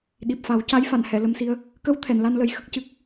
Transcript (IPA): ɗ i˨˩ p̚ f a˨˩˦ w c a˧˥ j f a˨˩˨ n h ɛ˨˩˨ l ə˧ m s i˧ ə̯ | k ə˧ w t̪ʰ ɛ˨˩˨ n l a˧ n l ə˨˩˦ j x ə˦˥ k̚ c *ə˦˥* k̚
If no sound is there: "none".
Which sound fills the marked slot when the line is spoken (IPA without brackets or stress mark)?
ɨ˦˥